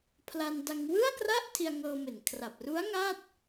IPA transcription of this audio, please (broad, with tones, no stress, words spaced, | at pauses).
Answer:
pʰla˧nda˧ŋ wɯ˥˩a̯kra˥˩ʔ tʰi˧a̯ŋɤː˧me˨˩n kʰra˨˩p̚ru˦˥a̯ ŋa˥˩t̚